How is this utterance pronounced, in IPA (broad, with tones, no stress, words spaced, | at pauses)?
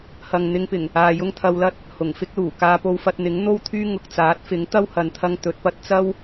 hɐ˨ŋn̪ɪ˧ŋpɪ˨˩ŋ | aː˨jʊ˥ŋ t̪ʰɐ˧wlɐ˥t̚ | hʊ˨˩ŋfɪ˥k̚luː˨˩ kaː˧po˧wfɐ˧t̚ n̪ɪ˨˥ŋn̪o˥wt̪ʰyː˥ ŋʊ˨k̚t͡saː˨˥t̚fɪ˨˥ŋ t̪ɐ˥whɐ˨˧n t̪ʰɐ˧ŋ t̪ɵ˨˥t̚pɐ˧t̚ t͡sɐ˥w